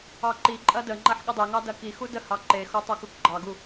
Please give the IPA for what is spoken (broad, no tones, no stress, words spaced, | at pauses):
ɑǃiǃʼɐ dəŋ͡ǃɐħ ɠədˤeŋɑ dɐkixu dəhɑ ǃexo tˤokukɡ͡ǃɑɡu